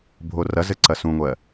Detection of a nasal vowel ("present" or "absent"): present